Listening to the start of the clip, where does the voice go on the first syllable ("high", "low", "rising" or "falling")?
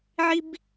high